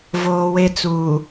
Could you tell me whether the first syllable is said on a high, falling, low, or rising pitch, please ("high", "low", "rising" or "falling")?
low